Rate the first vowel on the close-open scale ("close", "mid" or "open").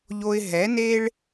mid